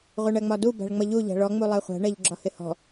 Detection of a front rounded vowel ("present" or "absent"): absent